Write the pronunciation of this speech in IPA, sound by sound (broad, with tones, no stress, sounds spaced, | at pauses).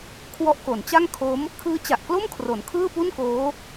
kʰ w ɔ˦˥ ʔ k o˩˦ n t͡ɕ a˥˩ ŋ kʰ o˦˥ m | kʰ ɯː˦˥ t͡ɕ a˨˩ ʔ k l o˥˩ m kʰ r o˩˦ n kʰ ɯː˥˩ p u˥˩ n k oː˦˥